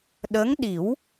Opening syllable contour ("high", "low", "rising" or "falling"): rising